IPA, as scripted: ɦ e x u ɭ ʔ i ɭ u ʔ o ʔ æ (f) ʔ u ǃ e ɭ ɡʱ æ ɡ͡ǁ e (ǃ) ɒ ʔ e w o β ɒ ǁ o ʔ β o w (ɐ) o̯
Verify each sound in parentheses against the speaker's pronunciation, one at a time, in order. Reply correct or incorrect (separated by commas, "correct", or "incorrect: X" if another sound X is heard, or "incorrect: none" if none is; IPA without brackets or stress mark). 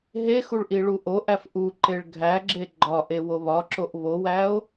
correct, incorrect: ɡ͡ǃ, incorrect: æ